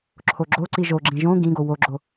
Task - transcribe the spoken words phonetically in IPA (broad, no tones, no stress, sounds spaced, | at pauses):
ǁʰ o ɡ͡ǁ o ǀ i ʒ o ɡ͡ǁ ĩ ʒ õ ɡ ĩ ɡ o w o ɡ͡ǁ o